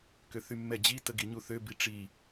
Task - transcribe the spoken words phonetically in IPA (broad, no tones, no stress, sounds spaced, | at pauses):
k ø θ y mː ɛ d͡ʑ i t ə ɡ i ɲ u θ ø b i ʈ͡ʂ i